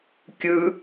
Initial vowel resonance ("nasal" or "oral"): oral